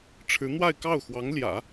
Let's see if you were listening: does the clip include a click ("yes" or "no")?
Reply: no